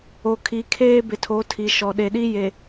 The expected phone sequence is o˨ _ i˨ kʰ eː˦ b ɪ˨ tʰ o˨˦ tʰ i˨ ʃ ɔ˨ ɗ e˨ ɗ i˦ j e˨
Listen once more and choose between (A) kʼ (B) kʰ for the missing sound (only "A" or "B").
B